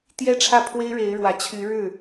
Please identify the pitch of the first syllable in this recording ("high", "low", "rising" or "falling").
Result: high